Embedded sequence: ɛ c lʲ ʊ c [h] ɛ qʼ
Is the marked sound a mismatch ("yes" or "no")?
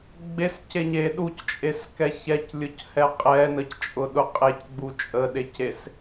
no